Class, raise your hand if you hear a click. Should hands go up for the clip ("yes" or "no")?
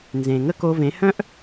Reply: no